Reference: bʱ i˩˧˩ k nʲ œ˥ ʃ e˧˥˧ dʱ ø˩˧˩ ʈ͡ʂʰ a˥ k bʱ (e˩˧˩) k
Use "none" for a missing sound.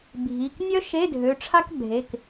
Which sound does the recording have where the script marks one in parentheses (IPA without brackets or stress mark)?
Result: e˩˧˩